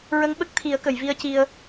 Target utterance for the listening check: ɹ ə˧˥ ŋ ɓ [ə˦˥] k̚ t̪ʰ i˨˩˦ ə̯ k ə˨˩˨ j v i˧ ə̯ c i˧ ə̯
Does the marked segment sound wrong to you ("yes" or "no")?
no